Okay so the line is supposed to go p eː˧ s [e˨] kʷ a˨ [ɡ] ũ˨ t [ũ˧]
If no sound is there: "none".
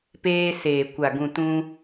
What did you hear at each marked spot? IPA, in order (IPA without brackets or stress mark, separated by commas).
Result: eː˨, ɡ, ũ˧